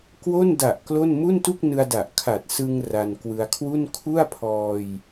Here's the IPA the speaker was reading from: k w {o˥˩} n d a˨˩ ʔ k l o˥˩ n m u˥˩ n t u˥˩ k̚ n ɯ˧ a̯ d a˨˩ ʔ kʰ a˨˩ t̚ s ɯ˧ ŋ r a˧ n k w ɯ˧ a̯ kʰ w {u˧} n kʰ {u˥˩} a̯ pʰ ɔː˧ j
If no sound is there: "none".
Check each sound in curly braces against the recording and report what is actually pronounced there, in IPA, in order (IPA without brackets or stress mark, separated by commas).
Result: o˥˩, u˥˩, u˥˩